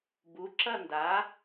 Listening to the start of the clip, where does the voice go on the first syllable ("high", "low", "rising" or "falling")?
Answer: rising